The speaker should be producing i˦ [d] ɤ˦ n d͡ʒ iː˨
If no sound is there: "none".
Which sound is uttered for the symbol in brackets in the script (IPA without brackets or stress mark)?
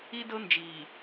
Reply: d